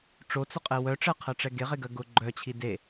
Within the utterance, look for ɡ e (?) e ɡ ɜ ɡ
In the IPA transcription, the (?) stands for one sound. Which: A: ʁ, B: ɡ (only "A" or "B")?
A